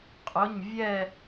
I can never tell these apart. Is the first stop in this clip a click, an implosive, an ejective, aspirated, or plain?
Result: ejective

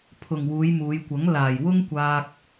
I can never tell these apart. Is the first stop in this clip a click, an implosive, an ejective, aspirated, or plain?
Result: aspirated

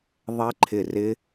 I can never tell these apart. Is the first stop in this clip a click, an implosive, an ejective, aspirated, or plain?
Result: click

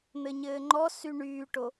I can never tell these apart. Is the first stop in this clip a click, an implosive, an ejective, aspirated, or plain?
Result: click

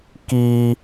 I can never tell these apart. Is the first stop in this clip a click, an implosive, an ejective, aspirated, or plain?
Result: plain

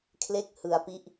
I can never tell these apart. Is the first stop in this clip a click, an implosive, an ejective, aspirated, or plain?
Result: aspirated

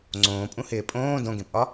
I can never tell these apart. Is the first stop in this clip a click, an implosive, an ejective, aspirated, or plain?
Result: click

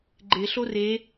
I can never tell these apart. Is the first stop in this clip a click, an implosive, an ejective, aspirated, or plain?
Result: click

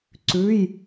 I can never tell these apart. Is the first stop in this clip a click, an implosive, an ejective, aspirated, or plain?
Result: click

